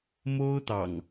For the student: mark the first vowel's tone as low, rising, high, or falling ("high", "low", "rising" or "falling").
high